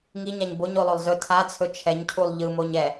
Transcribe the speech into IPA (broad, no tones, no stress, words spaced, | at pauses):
ŋiɲaɲ boɲ olˠolˠzɵ tʰat͡sʰɵ t͡ʃʰɛɲcʰulˠ ʎɯmoɲ ɛ